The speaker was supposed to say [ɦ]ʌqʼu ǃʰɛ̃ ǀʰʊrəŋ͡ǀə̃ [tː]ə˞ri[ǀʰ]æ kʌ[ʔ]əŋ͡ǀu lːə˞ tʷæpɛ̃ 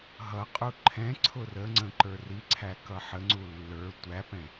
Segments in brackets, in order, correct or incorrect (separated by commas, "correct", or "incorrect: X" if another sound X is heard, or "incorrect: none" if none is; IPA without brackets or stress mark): correct, incorrect: ǃ, correct, incorrect: ħ